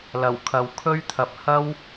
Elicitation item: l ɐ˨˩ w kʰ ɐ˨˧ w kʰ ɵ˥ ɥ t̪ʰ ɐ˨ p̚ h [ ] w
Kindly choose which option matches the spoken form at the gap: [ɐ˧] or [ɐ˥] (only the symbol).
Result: ɐ˥